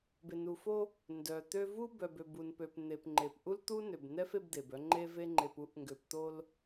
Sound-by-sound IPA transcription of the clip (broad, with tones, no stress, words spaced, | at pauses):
be˨nu˨ fo˦ | ndœ˨t̪ø˦ vu˦bœ˨bø˨ bu˨npø˨p n̪e˨pŋ͡ǃe˨p ʔu˦lt̪u˦nø˨bnɛ˦f e˦bd̪e˨bœ˦ ŋ͡ǃe˦ve˦ ŋ͡ǃe˨pu˦ʔŋɡø˨p t̪o˦l